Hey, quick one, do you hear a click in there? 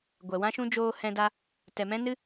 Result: no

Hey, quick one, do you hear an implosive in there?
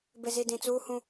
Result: no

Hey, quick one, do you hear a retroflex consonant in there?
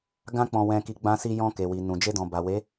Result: no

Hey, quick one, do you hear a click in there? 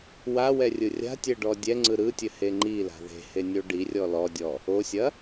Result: yes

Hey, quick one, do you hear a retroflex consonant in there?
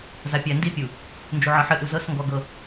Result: no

